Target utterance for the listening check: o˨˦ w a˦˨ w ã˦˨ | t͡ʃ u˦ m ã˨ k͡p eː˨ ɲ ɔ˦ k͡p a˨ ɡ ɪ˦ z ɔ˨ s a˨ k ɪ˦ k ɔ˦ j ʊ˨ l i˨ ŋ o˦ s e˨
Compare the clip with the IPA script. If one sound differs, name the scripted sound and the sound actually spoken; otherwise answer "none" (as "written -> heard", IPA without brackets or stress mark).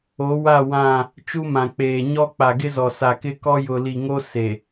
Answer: none